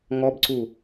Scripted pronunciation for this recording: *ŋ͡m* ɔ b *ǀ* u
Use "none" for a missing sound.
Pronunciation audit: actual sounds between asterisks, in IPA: ŋ, ǀ

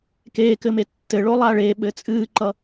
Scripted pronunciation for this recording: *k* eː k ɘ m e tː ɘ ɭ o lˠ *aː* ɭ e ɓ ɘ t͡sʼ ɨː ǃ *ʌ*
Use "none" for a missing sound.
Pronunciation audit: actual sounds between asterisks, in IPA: k, a, ʌ

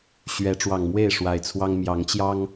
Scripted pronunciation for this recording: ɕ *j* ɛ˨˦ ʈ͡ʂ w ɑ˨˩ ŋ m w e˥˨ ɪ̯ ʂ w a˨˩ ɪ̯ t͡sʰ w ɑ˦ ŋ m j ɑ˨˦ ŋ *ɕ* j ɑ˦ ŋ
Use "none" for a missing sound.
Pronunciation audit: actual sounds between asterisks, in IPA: ɥ, t͡ɕ

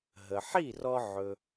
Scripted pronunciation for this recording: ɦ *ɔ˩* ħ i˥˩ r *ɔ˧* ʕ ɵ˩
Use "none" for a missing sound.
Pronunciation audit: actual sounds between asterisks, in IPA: ə˩, ɔ˧

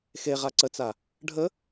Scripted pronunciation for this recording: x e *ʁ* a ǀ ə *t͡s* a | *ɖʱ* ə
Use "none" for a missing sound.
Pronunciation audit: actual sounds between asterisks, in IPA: ʁ, t͡s, ɖʱ

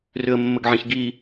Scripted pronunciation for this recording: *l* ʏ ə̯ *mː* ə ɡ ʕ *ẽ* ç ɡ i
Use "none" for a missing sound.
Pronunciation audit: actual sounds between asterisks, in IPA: r, mː, ẽ

